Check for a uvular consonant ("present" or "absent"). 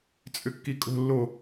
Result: absent